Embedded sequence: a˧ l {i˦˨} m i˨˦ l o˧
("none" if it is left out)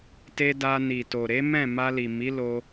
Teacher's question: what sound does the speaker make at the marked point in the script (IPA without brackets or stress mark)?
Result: i˨